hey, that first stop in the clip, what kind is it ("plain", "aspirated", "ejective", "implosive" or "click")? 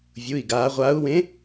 plain